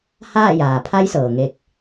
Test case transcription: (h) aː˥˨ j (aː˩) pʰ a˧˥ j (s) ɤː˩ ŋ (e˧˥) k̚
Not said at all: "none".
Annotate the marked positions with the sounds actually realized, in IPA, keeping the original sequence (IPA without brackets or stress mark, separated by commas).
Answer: h, aː˩, s, e˧